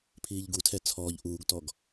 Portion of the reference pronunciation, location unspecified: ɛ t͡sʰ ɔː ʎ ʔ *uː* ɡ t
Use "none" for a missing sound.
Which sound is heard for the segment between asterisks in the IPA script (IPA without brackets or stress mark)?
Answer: uː